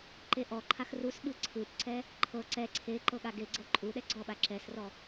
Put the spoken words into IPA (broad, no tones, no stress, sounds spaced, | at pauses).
ǃ e ʔ ɔ ǃʰ a x r u s ɓ ɯ ǀʰ ɯ p ǀ ɛ | ǃʰ ɤ ǀ ɛ ǀʰ e ǃ ɤ ɠ a ɡ e ɡ͡ǀ ɤ ǃʼ u ɗ ɛ ɡ͡ǀ ɔ ɓ a ǁ ɛ s r ɔ